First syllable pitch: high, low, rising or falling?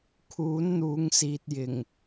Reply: rising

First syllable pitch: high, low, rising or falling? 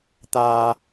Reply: low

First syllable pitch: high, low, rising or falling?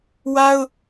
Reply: high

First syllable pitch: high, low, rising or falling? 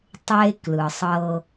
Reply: high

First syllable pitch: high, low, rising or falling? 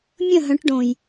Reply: falling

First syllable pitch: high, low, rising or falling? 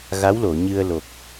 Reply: rising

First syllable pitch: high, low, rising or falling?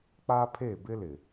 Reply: high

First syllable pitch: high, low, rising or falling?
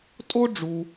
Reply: high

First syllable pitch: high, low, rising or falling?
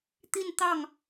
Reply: falling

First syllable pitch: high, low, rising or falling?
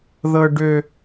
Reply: high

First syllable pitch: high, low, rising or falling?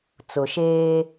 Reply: low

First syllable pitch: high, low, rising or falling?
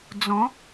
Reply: rising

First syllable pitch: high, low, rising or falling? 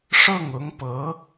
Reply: falling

